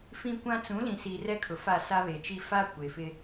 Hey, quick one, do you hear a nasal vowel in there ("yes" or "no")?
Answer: yes